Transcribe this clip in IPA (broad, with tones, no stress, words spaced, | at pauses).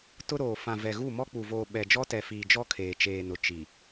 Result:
tʊ˦ ɾoː˨ fã˨ vɛ˨ɣu˦˨ mɔ˦k͡pu˨voː˨ ɓɛ˨d͡ʒɔ˦tɛ˨fiː˨ d͡ʒɔ˦kʰeː˨t͡ʃeː˨nʊ˨ t͡ʃi˨